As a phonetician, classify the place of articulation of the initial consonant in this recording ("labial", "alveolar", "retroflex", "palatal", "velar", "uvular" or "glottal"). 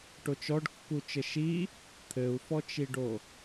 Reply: retroflex